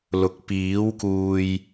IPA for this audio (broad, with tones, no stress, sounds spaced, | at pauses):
l ʊ˨˥ k̚ p iː˨˥ w k uː˧ j